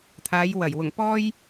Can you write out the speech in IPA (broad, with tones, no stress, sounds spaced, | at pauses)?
t̪ʰ aː˨˧ j w ɐ˨˩ j w ʊ˨˩ ŋ p ɔː˧ j